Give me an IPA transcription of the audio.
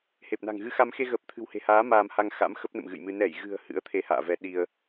h e˨˩ p̚ n a̤˨˩ ŋ ɣ ɨ˧ x a˧ m x e˧ ɣ əː˨˩ p̚ t̪ʰ ɨ̤˨˩ w h e̤˨˩ h aː˨˦ m aː˧ m h a˧ ŋ x a̰˧˥ m x ə˦˥ p̚ n ə̰˧˨ m ɣ ɨ̰˧˨ j m ɨ˧ n ɛ˧˩ j ɣ ɨ̤˨˩ ə̯ h ɨ̰˧˥ ə̯ t̪ʰ e˧ h a̰ː˧˨ v ɛ˨˦ ɗ i˧ ə̯

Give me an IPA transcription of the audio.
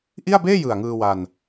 ʔ i˥˩ a̯ b eː˥˩ j ɯ˨˩ a̯ ŋ ɯː˧ w a˧ n

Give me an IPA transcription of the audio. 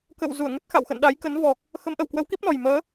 k ə̰˧˨ w z u˧˩ ə̯ ŋ ə˦˥ t̚ x a̰˧˨ w x ə̰˧˨ n ɗ a˨˦ j k ə˨˦ n v ɔ˨˩ k̚ | x ə˨˦ m ʔ ə˧˩ w k w ə˨˦ w k i˦˥ p̚ n ɔ˨˩ j m əː˨˦

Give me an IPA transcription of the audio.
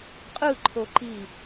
qʼ ɯ ǃʰ o ǃ i

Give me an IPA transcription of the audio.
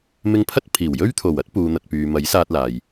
m ɪ˧ ŋ pʰ ɐ˥ t̚ pʰ iː˨˩ w j ɵ˥ ɥ t̪ʰ o˨˩ w ɐ˥ t̚ p uː˨ n̪ ɐ˨ t̚ p yː˨ m ɐ˨˥ j s aː˧ t̚ l aː˨ j

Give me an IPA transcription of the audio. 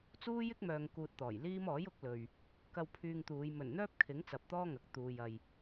t͡s uː˥ j ɪ˥ k̚ m œː˨ ŋ k uː˧ t̚ t̪ ɔː˨˩ j l iː˥ m ɔː˨˥ j ʊ˨˥ k̚ l ɵ˨ ɥ | k ɐ˧ w pʰ yː˧ ŋ t̪ uː˨˧ j m ɵ˨˩ n n̪ œː˥ p̚ kʰ ɪ˨˥ ŋ t͡s ɐ˧ p̚ t̪ ɔː˥ ŋ ɐ˨˥ k̚ t̪ uː˨ j ɐ˨ j

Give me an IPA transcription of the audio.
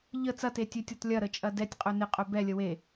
ʎ ə t͡s ɐ t e tʲ ø tʲ ɔ t lʲ ɐ ɾ ə t͡ʃʼ ɐ d ɛ tʲ qʼ œ n ɪ qʼ œ b ɛ lʲ ə w e

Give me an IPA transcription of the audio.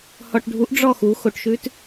h ɔ ʈ ɖʱ u ʔ ɖ͡ʐ ɔ x u x o ʈ ʃ ʉ t

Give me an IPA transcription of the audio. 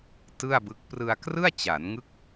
t ɯ˥˩ a̯ b ɯ˦˥ k̚ p r ɯ˧ a̯ k r ɯ˥˩ a̯ t͡ɕ a˩˦ n ŋ ɯ˦˥ k̚

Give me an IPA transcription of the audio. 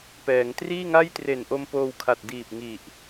p ɛː˩˦ ŋ t r iː˥˩ ŋ a˥˩ j t r e˨˩ n ʔ o˧ m p oː˧ w kʰ a˨˩ t̚ d iː˨˩ p̚ ŋ i˨˩ ʔ

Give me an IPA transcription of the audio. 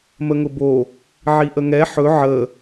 m ə ŋ ʊ b o | ʕ i ʔ ə ŋ ɛ ħ ɵ ʕ ə

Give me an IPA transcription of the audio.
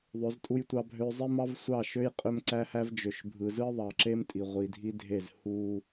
ðˤ ø˨˦ z tʼ u˦ j tʷ ɑ˦ bʱ ø˦ zˤ e˦ m ɑ˦ v sʷ ɑ˦˨ ʃ ø˦ j qʼ ø˦ m ǀ æ˦ h æ˦ v d͡ʒ ø˨ ʃ bʱ ɯ˨ z ɯ˦ ðˤ ɑ˨ ǁ e˦ m tʼ i˨ ʁʷ i˨ dʱ i˦ dʱ e˦˨ z h u˦

